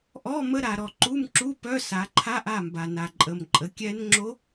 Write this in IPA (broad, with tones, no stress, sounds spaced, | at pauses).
ʔ ɔ˧˥˧ m ə˧˥˧ ɾ a˨ ɾ ɔ˨ ǃ u˧˥˧ m ǁ u˧˥˧ p œ˧˥˧ s a˨˦ ǃʰ a˧˥˧ ʔ a˥˨ m b a˨ n a˨ ǃʼ ə˨ m ǃʼ ə˨˦ kʲ ɛ˦˥ n ŋ͡ǁ o˦˥